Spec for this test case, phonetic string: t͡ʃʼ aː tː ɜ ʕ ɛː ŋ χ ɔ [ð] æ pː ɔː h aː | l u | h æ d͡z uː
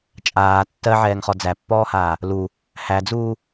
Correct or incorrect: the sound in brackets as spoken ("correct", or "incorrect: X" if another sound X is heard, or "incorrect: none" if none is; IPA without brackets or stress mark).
incorrect: d͡z